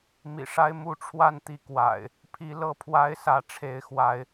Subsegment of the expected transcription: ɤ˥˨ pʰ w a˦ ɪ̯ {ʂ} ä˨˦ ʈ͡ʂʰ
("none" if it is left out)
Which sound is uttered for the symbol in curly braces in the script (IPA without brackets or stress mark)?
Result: s